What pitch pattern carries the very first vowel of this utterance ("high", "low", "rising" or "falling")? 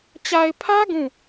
low